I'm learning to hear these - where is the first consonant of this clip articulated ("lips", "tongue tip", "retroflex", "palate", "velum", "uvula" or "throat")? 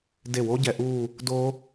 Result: tongue tip